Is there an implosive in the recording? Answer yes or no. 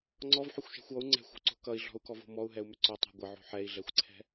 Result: no